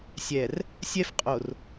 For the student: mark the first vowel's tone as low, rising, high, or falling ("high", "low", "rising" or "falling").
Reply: low